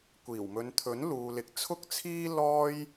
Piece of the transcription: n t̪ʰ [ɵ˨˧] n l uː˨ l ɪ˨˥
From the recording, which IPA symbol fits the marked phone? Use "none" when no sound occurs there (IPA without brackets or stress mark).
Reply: ɵ˨˥